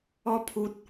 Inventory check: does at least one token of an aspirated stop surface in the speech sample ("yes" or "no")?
yes